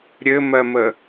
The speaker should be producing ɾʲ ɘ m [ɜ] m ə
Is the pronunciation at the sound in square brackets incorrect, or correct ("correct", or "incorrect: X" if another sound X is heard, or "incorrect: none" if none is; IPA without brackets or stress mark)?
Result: correct